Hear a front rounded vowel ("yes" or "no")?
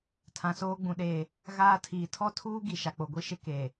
no